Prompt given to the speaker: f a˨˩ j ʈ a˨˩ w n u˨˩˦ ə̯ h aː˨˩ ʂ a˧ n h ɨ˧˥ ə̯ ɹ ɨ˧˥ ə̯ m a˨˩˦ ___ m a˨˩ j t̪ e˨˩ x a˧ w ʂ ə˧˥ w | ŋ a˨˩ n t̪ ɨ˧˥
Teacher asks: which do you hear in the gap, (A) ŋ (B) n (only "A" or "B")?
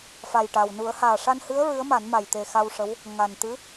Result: B